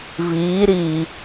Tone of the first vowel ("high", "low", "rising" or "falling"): rising